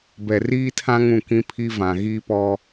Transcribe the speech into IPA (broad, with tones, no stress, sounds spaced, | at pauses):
b ɛ˨ r iː˦ tʰ ã˦ ŋ ũ˦˨ k ĩ˦ pʰ i˦ v ã˨ ɣ iː˦ p ɔ˦